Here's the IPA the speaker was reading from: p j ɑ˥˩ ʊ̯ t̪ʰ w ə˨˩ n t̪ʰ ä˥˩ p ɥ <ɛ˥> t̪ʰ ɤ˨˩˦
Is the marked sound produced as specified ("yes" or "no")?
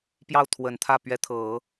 no